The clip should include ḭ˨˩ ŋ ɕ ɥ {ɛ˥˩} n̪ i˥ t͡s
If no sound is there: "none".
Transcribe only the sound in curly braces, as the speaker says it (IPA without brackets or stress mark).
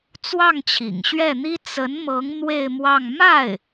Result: ɛ˥˩